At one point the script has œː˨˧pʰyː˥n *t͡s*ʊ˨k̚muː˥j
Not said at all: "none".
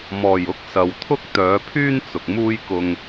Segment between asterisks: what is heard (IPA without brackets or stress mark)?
t͡s